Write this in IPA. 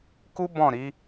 k u˦ b ɔ̃˦˨ ɾ i˨˦

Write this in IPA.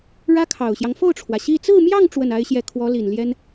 ɻ ä˥ kʰ ɑ˨˩ ʊ̯ ɕ j ɑ˦ ŋ f o˥˩ ʊ̯ ʈ͡ʂʰ w ä˩ ɕ i˥˧ t͡s ɹ̩˥˧ m j ɑ˥˧ ŋ ʈ͡ʂ w ə˥˩ n a˥ ɪ̯ ɕ j ɛ˥˩ kʰ w ɔ˧˥ l i˨˩ n l j ɛ˥ n

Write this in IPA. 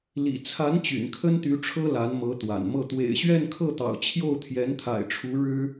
l ḭ˨˩ t͡sʰ a˧˥ n t͡ɕ y̰˨˩ n kʰ ə˥ n t̪ y˧˥ ʈ͡ʂʰ ɤ˥ l a˧˥ n m ɤ˧˥ t̪ w a̰˨˩ n m ɤ˥˩ t̪ w ḛ˨˩ ɪ̯ ɕ ɥ ɛ˥˧ n kʰ ɤ˥˩ t̪ ɑ̰˨˩ ʊ̯ t͡ɕʰ j o˥˩ ʊ̯ t̪ʰ j ɛ˧˥ n t̪ʰ a̰˨˩ ɪ̯ ʈ͡ʂʰ u˧˥ ɻ ɻ̩˥

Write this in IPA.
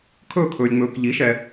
kʰ ɵː˥˧ kʰ ɵː˧ lʲ ŋ͡m ɵː˧ k ʎ i˨˥ ʃ ɛ˧

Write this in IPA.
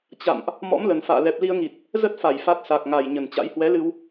t͡ɕ a̰˧˨ m ʔ | m ɔ̰˧˥ m l ə˨˩ n f a̰ː˧˨ l ɛ˨˩ p̚ l i˧ ə̯ ŋ i˨˩ t̚ | z ə˦˥ t̚ f a˧˩ j f a˦˥ t̚ s a˨˩ k̚ ŋ a˨˩ j ɲ ə˨˩ n t͡ɕ a̰˧˥ j h w ɛ˨˦ l ɨ˧ w

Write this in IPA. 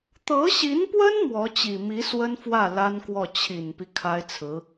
t̪ ɤ˧˥ ɕ i˧˥ n p w ə˥ n m w ɔ˧˥ t͡ɕ i˨˩ m i˧˥ s w ə˥ n f w ä˥˩ l a˥ n k w ɔ˥˩ t͡ɕʰ i˨˩ n p i˦ kʰ a˥ ɪ̯ t͡sʰ ɹ̩˧˥

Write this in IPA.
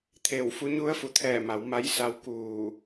t̪ʰ eː˧˩ w f u˧˥ ɲ u˧˥ ə̯ f u˩˧ t̪ʰ ɛː˧˩ m a˩˧ w m a˧˥ j s a˧˥ w k uː˧˩

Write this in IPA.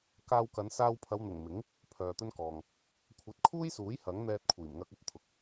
k aː˧ w k ɐ˨˧ n s aː˧ w pʰ ɐ˨˧ w n̪ ʊ˨˩ ŋ m ɪ˨˥ ŋ | pʰ œː˨ t̪ ɵ˥ n k ɔː˨ ŋ | kʷʰ ɐ˨˥ t̚ kʰ uː˥ j s uː˨˥ j h ɐ˨˥ ŋ n̪ ɛː˧ t̚ kʷʰ iː˨˩ m ŋ ɐ˧ k̚ ɵ˥ t̚ t̪ʰ ʊ˨˥ k̚

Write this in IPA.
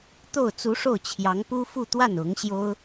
t̪ o˥˩ ʊ̯ t͡s u˧˥ ʂ o˥˩ ʊ̯ t͡ɕʰ j ɑ˧˥ ŋ p u˥ f u˥˧ t̪ w a˥˩ n ʊ˧˥ ŋ ɕ j o˥ ʊ̯

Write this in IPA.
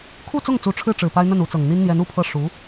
kʰ u˥˧ t͡s ʊ˥˩ ŋ t͡s u˧˥ ʈ͡ʂʰ ɻ̩˥˩ ʈ͡ʂ ɻ̩˨˩ p a˥ ɪ̯ n̪ ə˥˩ n u˧˥ t͡s ɤ˨˩ ŋ n̪ i˥ n n̪ j ɛ˧˥ n u˨˩ pʰ ɤ˥˩ ʂ u˧˥

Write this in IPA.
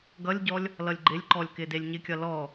ɡ ʌ lʲ ɟ ɔ lʲ | l ʌ lʲ ɡ͡ǃ ɪ lʲ ǃ ɔ lʲ k ɪ d e lʲ ɲ ɪ kʲ ʌ l ɔ

